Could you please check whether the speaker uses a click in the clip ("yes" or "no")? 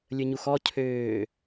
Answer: no